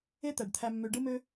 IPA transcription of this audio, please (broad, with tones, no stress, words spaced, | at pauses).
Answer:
e˦t̪æ˨ɖ t̪ʰæ˧mːø˧ ɖɯ˦mø˦